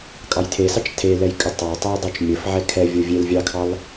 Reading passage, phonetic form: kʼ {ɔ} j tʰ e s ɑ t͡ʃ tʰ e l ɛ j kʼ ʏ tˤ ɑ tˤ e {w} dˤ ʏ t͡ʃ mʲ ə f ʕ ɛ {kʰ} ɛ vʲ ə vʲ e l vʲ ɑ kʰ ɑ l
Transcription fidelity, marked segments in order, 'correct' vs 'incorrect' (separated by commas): incorrect, correct, correct